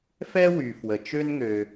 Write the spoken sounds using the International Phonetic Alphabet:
f ɛ˥ w y˩ f w ə˩ t͡ʃ ø˥ n ŋ ø˩

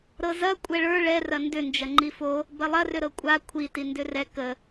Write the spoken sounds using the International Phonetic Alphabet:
ɾ ɤ z ɐ kʷʼ ɛ ɭ ə˞ ɭ ɛ r ɐ n d ʏ n d͡ʒ ɐ ŋ͡ǃ i f o | b ɐ lˠ ɐ r ʏ ɾ ɤ kʷʼ a kʷʰ i t i n d ʏ r ɛ k ə

